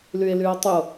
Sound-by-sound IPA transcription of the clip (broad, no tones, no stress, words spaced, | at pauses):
lye̯lyo̯tˤʏo̯